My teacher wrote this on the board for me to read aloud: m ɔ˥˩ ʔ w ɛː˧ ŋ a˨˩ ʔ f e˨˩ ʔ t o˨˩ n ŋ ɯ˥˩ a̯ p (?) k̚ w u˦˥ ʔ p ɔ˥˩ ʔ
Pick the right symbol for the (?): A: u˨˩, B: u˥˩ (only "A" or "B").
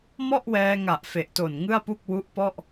B